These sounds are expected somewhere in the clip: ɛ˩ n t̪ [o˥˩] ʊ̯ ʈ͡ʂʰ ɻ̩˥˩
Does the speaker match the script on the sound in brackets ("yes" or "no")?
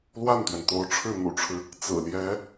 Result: no